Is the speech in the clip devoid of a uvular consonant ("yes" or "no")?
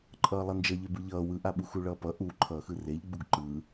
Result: yes